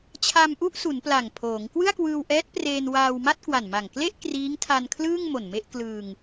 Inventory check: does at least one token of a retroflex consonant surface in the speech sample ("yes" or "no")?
no